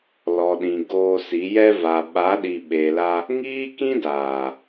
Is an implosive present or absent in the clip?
present